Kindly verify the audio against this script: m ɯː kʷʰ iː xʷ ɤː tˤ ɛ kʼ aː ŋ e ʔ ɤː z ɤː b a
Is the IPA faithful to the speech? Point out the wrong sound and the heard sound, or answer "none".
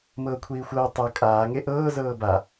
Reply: ɯː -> ɤː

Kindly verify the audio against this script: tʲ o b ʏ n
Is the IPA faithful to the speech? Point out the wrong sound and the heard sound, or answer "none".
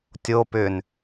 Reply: b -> p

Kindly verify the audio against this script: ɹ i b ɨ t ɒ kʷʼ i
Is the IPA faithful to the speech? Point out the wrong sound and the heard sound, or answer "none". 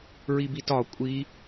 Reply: ɨ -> i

